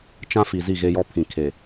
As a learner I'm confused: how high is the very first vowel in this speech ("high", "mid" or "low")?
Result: low